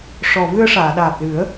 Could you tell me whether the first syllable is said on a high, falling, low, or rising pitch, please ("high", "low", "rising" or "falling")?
low